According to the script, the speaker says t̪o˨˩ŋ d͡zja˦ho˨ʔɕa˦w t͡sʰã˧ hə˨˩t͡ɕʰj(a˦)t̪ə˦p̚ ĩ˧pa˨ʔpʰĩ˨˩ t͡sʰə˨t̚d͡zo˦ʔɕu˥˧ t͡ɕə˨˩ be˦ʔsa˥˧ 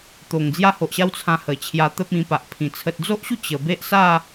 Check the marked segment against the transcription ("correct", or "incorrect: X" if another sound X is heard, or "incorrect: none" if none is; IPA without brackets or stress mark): incorrect: a˧